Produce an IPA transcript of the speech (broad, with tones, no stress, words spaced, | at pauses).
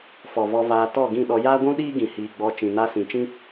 fɔ˨vɔ˧vaː˧ tɔ˦˨ɡĩ˦˨ɗɔ˧ jaː˦ɡʷũ˦ɗiː˦ ɡĩ˨hiː˨ɡ͡bɔ˧ t͡ʃĩ˨na˧sĩ˨t͡ʃĩ˦